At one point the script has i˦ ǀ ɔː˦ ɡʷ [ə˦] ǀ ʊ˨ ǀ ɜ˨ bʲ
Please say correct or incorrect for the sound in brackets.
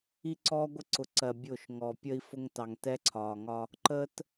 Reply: incorrect